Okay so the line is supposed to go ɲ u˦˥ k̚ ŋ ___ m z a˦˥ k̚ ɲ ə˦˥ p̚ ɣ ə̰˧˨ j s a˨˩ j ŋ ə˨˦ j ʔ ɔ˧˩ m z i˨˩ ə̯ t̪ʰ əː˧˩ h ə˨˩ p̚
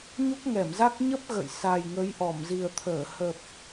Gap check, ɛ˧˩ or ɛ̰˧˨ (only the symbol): ɛ˧˩